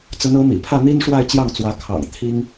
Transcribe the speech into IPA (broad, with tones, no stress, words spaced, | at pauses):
t͡sə˧˥nɤ˧˥mḭ˨˩ pʰä˥˩n̪i˥n ʂwa˥˧ɪ̯t͡ɕjɑ˥˩ŋt͡swä˧˥ kʰɑ̰˨˩ŋ t̪ʰi˥ŋ